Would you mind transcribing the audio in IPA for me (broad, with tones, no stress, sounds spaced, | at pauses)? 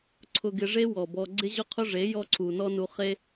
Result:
ǀʰ ʊ˧ ɡ ɪ˧ ʐ e˦ w ɔ˨ b ɔ˧ ɡ͡ǀ ɪ˦ ʑ ʊ˦ qʰ ʊ˦ ʐ e˨˦ j ɔ˦ ǀʰ u˨ n ɔ˦ n u˧ χ e˦